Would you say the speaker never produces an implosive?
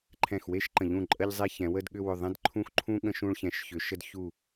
no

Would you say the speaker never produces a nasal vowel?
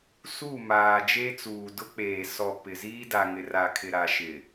yes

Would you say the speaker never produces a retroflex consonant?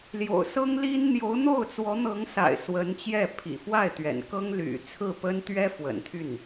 yes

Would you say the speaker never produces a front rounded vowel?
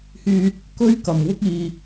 no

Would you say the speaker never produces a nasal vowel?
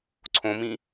no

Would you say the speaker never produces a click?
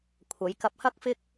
yes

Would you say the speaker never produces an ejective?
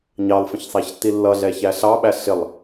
yes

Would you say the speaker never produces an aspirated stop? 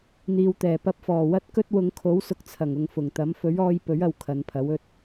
no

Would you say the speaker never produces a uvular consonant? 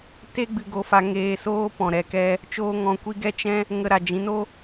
yes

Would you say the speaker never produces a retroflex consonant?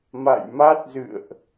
yes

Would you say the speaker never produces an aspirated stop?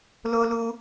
yes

